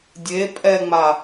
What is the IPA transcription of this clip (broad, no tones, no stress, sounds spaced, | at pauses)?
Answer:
dʲ e pʼ ɛ ŋ͡m a